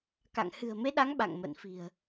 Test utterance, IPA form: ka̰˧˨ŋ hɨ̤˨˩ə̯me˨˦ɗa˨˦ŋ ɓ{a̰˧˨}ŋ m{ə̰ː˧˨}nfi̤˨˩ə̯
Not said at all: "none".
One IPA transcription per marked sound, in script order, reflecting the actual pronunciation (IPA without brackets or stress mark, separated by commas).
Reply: a̰˧˨, ə̰ː˧˨